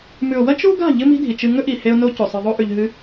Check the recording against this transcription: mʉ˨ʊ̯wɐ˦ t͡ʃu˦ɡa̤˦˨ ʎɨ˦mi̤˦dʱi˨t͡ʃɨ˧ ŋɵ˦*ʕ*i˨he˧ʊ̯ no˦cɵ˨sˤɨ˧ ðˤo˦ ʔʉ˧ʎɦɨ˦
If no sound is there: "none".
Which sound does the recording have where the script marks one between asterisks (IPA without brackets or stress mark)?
ʔ